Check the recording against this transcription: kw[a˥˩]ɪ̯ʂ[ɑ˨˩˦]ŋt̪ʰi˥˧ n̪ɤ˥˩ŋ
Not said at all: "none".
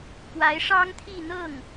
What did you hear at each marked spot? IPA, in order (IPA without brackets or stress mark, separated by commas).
a˧˥, ɑ˥